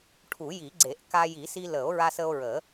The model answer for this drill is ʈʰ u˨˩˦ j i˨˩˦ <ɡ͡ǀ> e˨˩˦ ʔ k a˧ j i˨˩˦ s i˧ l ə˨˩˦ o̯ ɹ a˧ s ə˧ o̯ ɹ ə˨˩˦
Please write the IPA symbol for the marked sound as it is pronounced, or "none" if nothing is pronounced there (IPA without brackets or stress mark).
ɡ͡ǀ